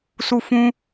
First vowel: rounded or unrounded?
rounded